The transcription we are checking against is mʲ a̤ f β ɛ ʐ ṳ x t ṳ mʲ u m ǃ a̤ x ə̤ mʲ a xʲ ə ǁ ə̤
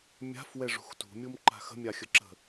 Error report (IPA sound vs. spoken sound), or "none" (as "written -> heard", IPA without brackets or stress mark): β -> w